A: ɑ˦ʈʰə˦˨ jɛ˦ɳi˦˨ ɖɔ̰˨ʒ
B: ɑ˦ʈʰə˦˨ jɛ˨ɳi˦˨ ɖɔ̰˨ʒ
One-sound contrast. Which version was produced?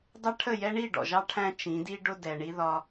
A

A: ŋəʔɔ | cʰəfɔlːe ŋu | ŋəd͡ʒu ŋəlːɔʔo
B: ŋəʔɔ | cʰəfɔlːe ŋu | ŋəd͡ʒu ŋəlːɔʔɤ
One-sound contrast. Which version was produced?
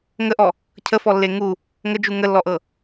B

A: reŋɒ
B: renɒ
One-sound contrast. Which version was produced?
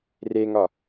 A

